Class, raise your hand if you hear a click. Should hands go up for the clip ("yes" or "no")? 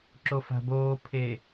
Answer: yes